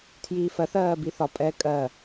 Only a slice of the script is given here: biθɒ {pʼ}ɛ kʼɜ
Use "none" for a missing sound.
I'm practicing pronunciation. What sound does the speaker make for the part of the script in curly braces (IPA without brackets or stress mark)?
pʼ